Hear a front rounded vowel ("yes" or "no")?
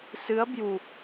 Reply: no